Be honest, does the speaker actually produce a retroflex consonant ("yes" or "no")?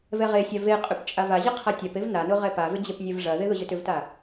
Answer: yes